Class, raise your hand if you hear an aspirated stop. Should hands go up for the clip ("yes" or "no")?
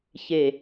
no